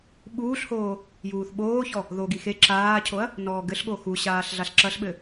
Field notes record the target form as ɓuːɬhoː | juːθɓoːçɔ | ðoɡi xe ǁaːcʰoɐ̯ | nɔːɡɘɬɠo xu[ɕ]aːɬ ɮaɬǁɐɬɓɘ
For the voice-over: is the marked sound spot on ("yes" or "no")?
yes